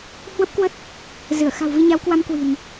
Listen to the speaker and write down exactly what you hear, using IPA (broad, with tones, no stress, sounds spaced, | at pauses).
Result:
h w ə˦˥ p̚ k w ə˦˥ t̚ | z ɨ˧˩ ə̯ x a̤˨˩ w v i˧ ɲ a˨˦ w k w a˧ m k w i̤˨˩ n